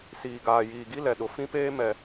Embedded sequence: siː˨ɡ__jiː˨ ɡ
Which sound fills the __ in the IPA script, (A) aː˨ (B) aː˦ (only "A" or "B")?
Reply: A